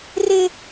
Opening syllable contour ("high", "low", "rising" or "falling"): high